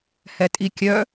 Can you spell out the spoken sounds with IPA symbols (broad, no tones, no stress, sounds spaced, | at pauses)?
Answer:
h ɛ tʼ i kʲ œ